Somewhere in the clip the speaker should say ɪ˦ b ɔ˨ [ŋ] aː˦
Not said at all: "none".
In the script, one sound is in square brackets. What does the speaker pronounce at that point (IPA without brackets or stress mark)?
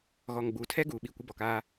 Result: k